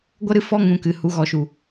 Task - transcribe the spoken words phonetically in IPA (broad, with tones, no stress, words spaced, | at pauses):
ɡʷə˦ɾɨ˦fɔ˦ ŋũ˨ kɨ˨hu˨˦ ɣɔ˨ʃu˨